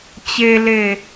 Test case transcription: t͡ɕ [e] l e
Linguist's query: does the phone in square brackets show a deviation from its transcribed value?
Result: no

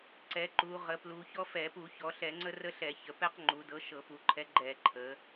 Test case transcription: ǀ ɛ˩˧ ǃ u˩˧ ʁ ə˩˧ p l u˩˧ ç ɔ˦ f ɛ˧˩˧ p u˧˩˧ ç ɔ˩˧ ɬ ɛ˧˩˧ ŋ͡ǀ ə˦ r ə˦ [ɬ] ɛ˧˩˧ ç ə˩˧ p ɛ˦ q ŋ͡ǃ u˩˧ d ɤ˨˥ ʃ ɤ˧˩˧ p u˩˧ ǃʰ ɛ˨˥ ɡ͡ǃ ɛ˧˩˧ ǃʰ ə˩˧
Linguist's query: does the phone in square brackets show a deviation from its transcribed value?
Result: no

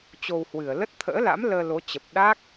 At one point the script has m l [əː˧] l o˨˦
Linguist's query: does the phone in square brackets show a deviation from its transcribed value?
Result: no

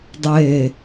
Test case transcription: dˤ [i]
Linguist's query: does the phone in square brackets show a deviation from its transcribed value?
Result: yes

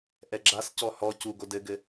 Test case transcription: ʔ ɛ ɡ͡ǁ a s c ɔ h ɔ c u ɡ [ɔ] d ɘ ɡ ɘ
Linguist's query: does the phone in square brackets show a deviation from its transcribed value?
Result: yes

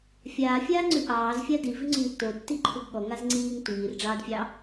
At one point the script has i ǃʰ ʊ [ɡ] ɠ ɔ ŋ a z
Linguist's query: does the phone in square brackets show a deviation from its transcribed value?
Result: no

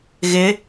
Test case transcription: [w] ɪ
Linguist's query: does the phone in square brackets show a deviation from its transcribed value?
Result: yes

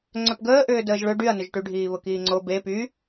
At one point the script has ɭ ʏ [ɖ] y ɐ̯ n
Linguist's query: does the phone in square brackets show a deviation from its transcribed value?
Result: no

